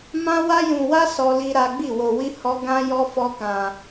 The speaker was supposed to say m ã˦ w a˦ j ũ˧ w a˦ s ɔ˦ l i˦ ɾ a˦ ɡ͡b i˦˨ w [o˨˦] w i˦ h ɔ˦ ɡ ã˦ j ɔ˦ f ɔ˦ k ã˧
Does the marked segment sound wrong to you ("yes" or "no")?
yes